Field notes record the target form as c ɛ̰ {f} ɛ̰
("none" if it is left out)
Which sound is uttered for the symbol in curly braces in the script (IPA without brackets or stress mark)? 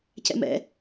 m